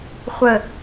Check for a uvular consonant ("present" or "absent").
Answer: present